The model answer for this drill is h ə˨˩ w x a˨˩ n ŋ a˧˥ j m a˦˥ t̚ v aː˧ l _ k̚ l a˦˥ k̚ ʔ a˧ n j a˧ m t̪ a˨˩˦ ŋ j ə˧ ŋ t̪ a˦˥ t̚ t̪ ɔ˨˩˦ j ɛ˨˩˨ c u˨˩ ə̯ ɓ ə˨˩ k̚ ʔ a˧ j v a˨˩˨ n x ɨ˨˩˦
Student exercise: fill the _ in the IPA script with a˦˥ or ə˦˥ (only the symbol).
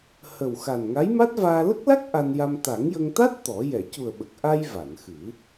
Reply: ə˦˥